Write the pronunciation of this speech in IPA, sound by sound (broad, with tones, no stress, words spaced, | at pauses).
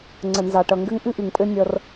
ŋ͡ǀə˨nzɑ˨ʈʌ˨ ŋɡɘ˦ŋʔɨ˦ʔɨ˨ŋpʼɘ˦ nʲʌ˧r